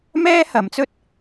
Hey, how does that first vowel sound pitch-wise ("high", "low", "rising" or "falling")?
high